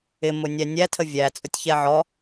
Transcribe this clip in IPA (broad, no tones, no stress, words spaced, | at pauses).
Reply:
ɪmʊ nʲænʲætʰə vʲæ t͡sʼʊtʲçɛʕɔ